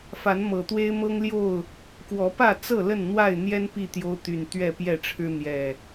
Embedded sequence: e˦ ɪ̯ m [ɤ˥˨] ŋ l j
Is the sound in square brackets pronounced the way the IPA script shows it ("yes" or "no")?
no